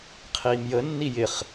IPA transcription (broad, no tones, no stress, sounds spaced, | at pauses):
qʰ iː m j ə nː i j ɪ χ